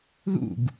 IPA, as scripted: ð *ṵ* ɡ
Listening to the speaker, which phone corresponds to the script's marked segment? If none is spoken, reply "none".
ṵ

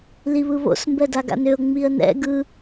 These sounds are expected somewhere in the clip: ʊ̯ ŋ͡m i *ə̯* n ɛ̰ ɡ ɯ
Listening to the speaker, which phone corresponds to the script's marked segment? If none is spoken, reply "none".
ə̯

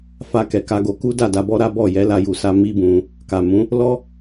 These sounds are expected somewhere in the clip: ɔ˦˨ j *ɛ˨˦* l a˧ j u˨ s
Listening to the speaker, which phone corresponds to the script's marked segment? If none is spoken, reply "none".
ɛ˨˦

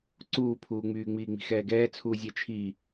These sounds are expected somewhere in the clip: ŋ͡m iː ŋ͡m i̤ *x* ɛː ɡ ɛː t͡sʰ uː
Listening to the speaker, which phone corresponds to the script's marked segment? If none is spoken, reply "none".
x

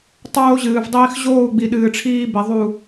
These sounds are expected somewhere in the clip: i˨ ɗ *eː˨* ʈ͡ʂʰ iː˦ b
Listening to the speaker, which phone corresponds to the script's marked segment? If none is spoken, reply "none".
ɨː˨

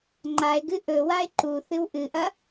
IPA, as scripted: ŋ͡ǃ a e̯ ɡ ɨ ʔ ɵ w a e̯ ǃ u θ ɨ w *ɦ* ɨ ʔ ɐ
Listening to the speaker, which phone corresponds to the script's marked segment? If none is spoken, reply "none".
ʔ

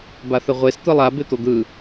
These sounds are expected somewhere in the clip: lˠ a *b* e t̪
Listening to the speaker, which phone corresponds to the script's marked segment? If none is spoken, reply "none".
b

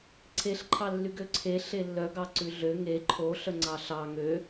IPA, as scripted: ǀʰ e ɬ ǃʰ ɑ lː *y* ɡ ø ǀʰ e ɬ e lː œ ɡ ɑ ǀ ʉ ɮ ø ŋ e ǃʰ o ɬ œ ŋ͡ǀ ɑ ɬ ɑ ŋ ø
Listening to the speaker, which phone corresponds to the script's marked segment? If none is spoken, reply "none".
y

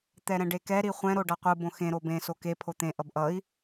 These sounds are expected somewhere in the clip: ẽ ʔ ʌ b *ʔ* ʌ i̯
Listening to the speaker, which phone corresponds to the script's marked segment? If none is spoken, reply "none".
ʔ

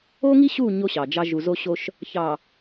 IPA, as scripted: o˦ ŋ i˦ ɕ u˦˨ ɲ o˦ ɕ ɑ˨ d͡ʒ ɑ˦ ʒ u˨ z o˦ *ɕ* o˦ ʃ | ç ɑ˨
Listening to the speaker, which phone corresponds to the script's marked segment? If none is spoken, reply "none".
ɕ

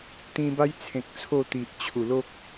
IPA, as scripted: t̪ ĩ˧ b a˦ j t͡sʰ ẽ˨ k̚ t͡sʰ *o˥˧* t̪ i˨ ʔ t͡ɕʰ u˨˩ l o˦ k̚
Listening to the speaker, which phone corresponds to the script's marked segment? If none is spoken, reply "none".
o˥˧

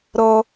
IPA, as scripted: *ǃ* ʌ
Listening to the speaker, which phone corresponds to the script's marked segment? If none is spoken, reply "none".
ɾ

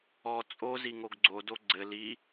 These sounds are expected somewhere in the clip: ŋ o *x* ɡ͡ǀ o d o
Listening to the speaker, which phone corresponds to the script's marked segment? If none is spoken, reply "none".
ɡ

